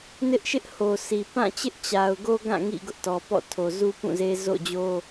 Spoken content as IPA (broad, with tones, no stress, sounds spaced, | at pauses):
n ɪ˦ ʔ ʃ ɪ˦ ʔ h o˨ sʰ i˨ p ã˦˨ t͡ɕ ɪ˦ ʔ t͡ɕ a˨ ʊ̯ ɡ o˦ ɡ ã˦˨ ŋ ḭ˦˨ ɡ ʊ˦ ʔ t ɔ˨ p ɔ̰˦˨ tʰ o˨ z u˦ p ũ˦˨ z e˦ z o̰˦˨ d͡ʑ o˦